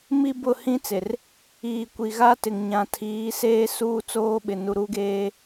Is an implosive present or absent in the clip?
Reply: present